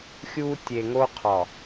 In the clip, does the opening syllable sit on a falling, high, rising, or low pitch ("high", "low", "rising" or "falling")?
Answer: high